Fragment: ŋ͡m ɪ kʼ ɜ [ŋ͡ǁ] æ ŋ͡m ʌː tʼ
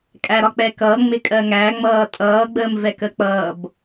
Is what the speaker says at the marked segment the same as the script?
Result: no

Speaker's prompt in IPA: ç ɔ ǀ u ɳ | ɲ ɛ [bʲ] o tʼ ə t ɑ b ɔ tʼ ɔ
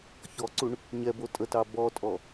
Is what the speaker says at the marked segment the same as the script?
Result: no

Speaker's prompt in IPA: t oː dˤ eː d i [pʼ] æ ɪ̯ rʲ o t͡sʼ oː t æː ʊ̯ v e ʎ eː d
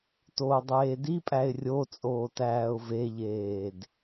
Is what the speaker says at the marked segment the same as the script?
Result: yes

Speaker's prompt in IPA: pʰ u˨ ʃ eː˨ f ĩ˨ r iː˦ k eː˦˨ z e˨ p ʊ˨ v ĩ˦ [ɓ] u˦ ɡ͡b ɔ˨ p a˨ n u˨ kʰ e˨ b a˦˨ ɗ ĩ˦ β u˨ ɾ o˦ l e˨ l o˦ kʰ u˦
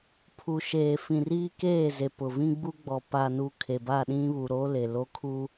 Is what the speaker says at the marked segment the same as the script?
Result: no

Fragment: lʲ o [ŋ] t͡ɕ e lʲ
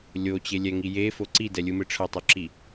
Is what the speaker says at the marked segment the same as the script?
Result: no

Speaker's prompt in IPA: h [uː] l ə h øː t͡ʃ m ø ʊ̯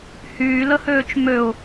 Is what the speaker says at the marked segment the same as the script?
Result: no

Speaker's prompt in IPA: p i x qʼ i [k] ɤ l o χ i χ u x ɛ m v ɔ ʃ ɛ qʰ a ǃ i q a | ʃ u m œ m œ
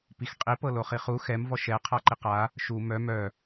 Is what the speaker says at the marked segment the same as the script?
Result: no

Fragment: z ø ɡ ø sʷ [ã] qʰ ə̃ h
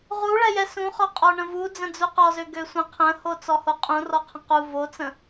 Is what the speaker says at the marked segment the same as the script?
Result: no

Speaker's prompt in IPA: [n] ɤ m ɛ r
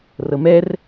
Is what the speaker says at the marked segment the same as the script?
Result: no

